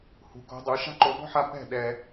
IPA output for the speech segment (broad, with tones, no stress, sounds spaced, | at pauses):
h ṳ˨ k o̤˧ dˤ u˨˦ ʃ a̤˦ ǃ o˧ b ɔ̤˦ ħ a˧ p ɛ̤˦˨ ɗ ɛ˧